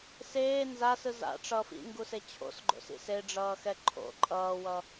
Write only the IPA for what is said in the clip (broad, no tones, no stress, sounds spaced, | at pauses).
s eː n z a s ɯ z a̰ ʈ͡ʂ ʌ f ḭ ŋ ɡ u s e t͡ɕʰ o̰ s ɡ͡ǃ o̰ s ḭ s e ɖ͡ʐ ʌː x ɛ ǃʰ o̰ ǃʼ ʌː w ʌ